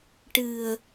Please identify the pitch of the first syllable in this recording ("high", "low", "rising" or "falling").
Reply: low